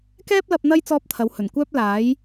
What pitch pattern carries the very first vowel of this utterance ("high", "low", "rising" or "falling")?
high